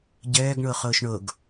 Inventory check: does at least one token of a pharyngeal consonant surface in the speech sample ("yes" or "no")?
no